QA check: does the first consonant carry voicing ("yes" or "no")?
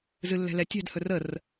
yes